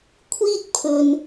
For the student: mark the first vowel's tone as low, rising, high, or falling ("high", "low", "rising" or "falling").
high